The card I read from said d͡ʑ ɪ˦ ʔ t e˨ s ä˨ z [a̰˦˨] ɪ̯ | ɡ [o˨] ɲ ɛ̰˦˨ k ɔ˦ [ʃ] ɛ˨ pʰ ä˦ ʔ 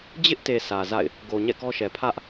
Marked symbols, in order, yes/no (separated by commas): yes, yes, yes